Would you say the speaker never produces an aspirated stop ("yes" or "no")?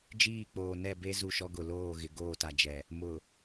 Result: yes